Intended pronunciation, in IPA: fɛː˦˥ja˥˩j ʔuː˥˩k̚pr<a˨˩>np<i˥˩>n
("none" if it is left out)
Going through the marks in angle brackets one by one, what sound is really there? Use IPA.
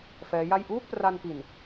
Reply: a˧, i˨˩

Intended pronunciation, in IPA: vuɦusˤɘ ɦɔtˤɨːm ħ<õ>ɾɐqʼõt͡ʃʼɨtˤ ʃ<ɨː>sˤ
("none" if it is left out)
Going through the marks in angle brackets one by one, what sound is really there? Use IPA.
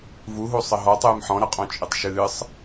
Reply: ɔ̃, ɨː

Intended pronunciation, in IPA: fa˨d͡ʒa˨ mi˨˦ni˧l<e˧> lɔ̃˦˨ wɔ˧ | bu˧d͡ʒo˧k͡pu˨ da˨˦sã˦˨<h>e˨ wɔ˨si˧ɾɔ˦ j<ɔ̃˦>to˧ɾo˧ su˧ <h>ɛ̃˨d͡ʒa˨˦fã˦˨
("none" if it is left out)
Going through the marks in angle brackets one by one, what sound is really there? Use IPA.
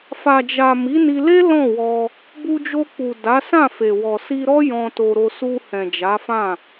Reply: e˦, f, ɔ̃˧, h

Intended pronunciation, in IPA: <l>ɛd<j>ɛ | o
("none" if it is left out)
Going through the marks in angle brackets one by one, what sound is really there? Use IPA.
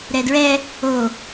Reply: ɾ, ɹ

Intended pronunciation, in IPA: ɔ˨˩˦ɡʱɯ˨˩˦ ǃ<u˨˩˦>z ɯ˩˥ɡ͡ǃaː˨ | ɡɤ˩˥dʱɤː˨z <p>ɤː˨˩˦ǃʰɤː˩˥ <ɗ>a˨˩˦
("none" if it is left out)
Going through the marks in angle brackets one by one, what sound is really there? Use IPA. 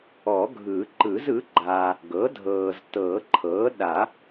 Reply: ɯ˨˩˦, t, ɗ

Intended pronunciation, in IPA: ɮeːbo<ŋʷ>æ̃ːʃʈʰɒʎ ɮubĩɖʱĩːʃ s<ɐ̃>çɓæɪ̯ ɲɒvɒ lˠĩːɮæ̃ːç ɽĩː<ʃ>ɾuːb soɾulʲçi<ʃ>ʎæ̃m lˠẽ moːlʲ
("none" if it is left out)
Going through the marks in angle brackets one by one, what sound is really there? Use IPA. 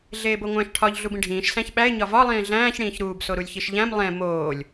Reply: ŋʷ, æ̃, ç, ʃ

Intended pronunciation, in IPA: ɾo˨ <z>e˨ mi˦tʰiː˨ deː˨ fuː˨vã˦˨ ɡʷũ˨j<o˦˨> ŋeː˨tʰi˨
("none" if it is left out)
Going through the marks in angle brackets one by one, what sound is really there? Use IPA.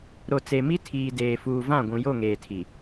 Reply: t͡s, o˦˨

